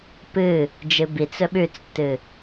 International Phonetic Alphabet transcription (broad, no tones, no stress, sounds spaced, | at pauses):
p ɨ | d͡ʒ ɨ b i t͡s ɵ ɓ ʉ t͡s tː ɨ